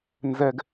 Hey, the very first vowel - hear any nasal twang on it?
no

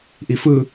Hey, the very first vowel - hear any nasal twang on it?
no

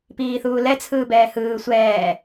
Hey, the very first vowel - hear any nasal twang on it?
no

